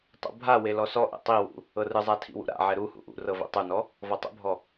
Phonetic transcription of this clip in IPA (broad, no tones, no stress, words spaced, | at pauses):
tˤṵbʱawe lɔsɔʔɛ̰ tˤiwṵ | ɤrɯzˤa tʰḭwṵɾa̰ʕɛ ɾu hṵʔṵrɤ vɛ̰tˤunɔ | vɔtˤṵbʱɔ